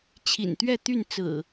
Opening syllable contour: low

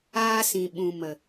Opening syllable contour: high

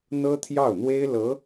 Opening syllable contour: high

